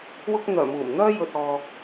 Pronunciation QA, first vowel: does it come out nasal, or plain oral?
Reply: oral